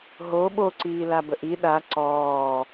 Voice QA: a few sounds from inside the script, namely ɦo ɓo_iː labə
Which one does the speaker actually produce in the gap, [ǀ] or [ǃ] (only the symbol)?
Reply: ǀ